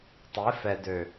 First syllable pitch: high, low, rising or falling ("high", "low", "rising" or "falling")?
rising